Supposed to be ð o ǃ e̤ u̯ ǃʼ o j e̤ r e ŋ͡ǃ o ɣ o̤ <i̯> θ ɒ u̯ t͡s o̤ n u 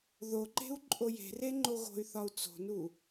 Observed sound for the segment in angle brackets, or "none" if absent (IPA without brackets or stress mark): y̯